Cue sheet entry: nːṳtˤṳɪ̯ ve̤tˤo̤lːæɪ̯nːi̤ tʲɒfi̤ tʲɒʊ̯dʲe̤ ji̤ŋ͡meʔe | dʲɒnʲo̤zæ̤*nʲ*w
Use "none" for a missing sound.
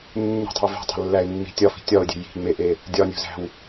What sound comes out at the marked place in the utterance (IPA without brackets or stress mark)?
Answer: none